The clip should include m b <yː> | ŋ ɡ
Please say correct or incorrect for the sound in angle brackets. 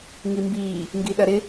incorrect